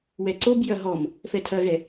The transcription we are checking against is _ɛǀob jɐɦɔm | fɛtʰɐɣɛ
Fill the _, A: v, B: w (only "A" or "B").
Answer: B